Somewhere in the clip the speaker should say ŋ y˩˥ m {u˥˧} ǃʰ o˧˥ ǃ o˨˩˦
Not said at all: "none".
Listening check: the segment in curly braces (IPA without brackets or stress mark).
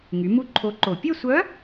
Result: u˥˧